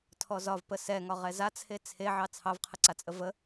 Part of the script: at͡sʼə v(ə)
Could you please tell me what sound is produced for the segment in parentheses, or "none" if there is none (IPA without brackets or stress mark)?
ə